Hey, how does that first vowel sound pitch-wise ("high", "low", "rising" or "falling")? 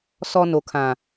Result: low